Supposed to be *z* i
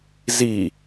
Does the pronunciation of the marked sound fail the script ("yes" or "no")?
no